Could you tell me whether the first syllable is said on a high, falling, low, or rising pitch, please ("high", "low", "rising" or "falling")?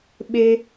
high